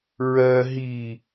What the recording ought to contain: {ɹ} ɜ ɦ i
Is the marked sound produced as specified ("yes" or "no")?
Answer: yes